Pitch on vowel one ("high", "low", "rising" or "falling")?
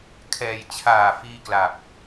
low